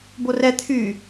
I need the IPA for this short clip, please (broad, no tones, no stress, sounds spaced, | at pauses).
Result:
b o r ɛ t̪ʰ y